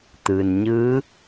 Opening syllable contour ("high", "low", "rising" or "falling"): low